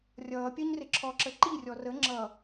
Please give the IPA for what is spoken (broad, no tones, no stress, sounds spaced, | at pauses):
rʲ ʌː pʲ ɜ ɲ r ɪ ǁʰ ɔ ǁ ə ǃ i rʲ ɔ r ə ŋ͡ǁ ʌ